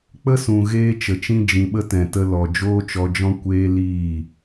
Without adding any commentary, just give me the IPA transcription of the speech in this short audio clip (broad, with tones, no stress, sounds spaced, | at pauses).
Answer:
k͡p ə˦ s ũ˨ ɣ eː˦ t͡ʃ ə˨ t͡ʃ ĩ˦ d͡ʒ ĩ˨ ɓ ə˦ t ɛ̃˨ t ə˧ l ɔ˨ d͡ʒ oː˦ t͡ʃ ɔ˧ d͡ʒ ɔ̃˦ kʷ eː˦ l iː˦˨